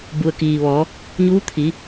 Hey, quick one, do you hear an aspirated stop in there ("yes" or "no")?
yes